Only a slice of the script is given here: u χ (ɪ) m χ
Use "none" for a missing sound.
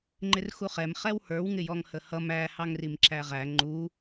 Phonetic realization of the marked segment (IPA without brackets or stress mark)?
ɛ